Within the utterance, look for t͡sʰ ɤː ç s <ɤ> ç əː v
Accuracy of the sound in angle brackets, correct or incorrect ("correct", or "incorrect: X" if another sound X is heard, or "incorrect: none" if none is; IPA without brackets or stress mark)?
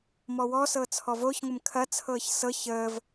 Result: correct